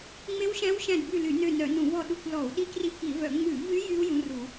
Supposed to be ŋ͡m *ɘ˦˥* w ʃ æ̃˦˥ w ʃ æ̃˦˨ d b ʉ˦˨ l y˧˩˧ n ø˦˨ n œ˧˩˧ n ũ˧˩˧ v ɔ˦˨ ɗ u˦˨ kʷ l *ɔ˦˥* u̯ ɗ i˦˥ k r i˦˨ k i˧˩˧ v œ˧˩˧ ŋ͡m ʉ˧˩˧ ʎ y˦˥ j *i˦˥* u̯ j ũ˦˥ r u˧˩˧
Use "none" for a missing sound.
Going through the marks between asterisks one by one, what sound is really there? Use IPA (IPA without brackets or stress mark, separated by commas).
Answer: e˦˥, ɔ˧˩˧, y˦˥